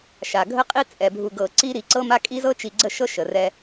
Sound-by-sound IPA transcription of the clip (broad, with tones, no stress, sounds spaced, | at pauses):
ʃ a˨ ɡʱ ə˦ qʼ i˦ t͡sʼ ɛ˨ bʱ u˨ ɡ ɤ˨ ǀ i˦ ɾ i˨ ǀ ɤ˦ m a˦ kʼ i˦ z ɤ˦ t͡ʃ i˨ ɡ͡ǀ ə˦˨ ʃ ɤ˦ ʃ ə˨ r ɛ˦